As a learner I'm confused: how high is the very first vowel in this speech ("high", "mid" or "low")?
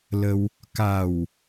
mid